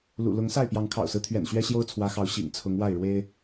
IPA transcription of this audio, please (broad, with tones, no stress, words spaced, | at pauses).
lṵ˨˩ lʊ˨˦ŋsa˥˨ɪ̯ pjɑ˨˦ŋkʰɑ̰˨˩ʊ̯sɹ̩˦t̪ʰɥɛ̰˨˩n ɕɥɛ˦ɕjo˦ʊ̯t͡sʰwä˨˦xɑ˨˦ʊ̯ ɕḭ˨˩ŋt͡sʰʊ˨˦ŋ wa˥˨ɪ̯ɻwe˦ɪ̯